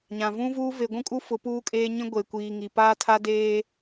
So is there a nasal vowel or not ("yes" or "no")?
yes